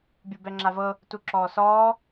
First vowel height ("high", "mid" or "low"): high